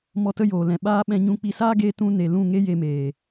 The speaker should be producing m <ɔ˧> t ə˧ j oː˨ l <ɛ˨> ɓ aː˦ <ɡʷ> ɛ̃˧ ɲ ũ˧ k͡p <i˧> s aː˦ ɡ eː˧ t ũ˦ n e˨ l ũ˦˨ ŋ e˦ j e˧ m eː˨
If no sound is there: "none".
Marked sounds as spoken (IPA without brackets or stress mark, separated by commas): ɔ˧, ɛ̃˨, ɓ, i˧